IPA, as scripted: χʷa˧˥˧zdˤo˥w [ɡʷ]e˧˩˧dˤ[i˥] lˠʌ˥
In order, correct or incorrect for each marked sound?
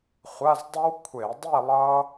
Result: incorrect: kʷʰ, incorrect: i˥˨

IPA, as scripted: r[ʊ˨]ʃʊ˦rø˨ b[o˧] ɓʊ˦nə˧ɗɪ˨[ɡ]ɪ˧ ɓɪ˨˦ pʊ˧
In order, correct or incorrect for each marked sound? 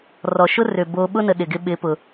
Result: incorrect: ɔ˨, correct, correct

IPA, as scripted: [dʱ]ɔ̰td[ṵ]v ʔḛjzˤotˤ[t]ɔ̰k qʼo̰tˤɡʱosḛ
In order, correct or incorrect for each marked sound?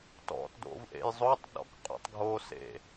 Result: incorrect: t, incorrect: o̰, incorrect: ɗ

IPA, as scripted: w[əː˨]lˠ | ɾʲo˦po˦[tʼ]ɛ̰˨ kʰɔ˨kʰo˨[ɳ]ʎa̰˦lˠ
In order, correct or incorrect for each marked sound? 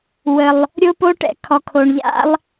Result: incorrect: ə˨, incorrect: ʈ, correct

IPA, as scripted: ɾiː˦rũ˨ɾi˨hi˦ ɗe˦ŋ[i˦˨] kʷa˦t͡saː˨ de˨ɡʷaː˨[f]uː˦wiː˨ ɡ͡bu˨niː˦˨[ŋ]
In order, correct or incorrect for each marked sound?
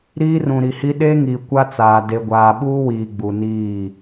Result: incorrect: i˨, incorrect: ɓ, incorrect: none

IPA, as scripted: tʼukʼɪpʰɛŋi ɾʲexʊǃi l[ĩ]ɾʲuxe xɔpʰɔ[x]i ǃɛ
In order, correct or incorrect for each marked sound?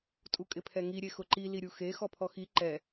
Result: incorrect: i, correct

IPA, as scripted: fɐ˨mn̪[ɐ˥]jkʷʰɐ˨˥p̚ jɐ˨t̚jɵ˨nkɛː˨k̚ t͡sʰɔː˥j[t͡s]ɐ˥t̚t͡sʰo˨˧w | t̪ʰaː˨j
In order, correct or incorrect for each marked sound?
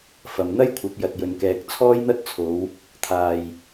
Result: correct, incorrect: n̪

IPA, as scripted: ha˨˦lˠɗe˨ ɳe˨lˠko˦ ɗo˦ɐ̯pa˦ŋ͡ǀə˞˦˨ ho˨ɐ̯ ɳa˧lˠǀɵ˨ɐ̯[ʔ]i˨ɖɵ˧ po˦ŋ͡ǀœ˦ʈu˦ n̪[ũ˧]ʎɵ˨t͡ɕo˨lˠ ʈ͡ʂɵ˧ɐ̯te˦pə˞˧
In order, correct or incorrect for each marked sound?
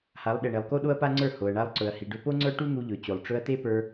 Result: incorrect: h, incorrect: u˧

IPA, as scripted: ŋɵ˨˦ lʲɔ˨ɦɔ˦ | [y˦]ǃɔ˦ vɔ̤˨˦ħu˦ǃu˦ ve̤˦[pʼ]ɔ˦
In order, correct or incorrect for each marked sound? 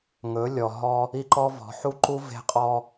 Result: incorrect: i˦, incorrect: qʼ

